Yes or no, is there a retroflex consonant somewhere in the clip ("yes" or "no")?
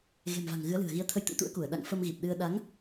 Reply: no